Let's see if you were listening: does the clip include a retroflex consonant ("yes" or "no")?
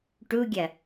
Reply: yes